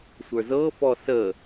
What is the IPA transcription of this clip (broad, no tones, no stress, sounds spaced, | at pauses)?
sʷ ə˞ z ɤ f ɔ s ə